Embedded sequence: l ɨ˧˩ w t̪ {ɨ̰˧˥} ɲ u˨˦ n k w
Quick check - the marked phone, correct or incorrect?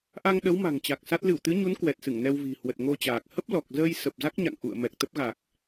incorrect